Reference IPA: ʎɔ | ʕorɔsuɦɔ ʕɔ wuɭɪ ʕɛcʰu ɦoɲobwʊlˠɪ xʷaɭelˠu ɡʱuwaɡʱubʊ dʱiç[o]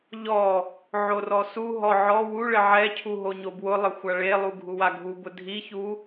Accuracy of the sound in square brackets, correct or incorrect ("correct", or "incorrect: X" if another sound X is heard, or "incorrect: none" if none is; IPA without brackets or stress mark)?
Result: incorrect: u